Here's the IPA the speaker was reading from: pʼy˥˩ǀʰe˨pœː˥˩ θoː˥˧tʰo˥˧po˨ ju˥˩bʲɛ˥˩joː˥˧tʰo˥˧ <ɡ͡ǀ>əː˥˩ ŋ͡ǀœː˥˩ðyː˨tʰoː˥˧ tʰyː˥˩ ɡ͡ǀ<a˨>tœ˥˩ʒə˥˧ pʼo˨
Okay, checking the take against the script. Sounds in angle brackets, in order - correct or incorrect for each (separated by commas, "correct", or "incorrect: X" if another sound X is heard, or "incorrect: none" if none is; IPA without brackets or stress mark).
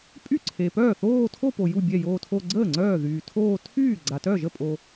correct, correct